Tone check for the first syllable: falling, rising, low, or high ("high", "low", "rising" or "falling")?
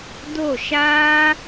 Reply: falling